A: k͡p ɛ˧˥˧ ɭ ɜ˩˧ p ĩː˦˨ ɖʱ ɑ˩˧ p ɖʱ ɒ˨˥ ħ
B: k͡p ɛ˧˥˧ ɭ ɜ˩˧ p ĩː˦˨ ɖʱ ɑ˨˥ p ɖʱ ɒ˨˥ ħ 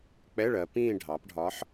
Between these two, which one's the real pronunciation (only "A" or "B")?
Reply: A